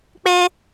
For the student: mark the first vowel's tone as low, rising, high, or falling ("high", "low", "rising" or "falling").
high